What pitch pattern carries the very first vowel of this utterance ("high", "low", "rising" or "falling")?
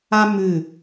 high